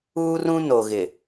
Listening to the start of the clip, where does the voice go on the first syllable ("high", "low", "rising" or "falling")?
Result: high